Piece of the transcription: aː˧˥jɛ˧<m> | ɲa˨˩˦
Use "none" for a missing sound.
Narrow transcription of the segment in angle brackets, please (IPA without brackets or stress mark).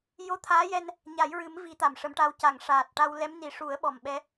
n